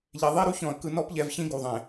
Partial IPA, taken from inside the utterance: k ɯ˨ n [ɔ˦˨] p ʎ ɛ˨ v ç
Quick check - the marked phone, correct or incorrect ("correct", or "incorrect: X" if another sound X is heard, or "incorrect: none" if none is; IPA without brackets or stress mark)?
incorrect: ɔ˦